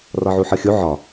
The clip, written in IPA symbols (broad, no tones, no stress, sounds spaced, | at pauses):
r ɒ ʕ u ħ ɤ xʲ u ʕ ɒ